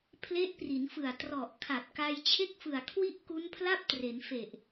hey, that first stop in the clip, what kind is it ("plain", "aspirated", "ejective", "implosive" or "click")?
aspirated